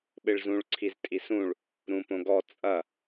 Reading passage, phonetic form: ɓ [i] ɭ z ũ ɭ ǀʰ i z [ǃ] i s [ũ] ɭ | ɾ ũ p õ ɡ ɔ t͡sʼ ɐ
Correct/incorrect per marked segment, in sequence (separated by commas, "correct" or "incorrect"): incorrect, incorrect, correct